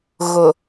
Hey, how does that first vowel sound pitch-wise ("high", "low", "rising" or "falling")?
low